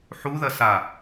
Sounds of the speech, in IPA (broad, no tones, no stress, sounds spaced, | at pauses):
ħ u ð ɐ s a